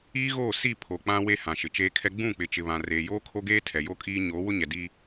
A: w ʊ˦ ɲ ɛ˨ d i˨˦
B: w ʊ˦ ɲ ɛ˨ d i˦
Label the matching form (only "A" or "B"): B